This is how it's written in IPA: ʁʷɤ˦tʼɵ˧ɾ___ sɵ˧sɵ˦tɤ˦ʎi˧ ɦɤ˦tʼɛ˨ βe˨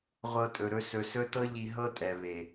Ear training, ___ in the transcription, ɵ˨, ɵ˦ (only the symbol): ɵ˦